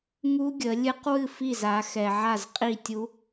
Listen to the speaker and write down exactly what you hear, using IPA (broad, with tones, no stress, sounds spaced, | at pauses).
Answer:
ŋ u˦˥ ɡʲ ə˨˦ lʲ ɨ˦˥ q w ɨ˥˨ f i˥˨ z a˨˦ x ɛ˨ ʕ a˥˨ z qʼ i˥˨ tʲ u˦˥